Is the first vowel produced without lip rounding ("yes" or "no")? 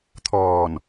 no